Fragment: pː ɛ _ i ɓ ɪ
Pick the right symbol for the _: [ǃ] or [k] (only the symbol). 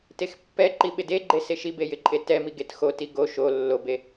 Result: ǃ